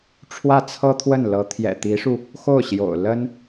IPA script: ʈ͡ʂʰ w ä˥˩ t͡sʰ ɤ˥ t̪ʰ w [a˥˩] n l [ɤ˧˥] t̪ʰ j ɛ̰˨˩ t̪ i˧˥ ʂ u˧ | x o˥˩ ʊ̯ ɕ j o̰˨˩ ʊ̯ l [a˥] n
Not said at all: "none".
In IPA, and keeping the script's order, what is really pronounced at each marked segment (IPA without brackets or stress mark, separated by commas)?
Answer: ə˥˩, ɤ˧˥, ə˥